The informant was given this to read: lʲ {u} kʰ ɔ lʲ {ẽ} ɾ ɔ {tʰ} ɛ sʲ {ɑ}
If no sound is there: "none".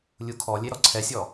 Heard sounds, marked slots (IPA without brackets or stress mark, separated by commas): u, e, ǀʰ, ɔ